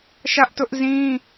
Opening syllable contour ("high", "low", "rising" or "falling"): high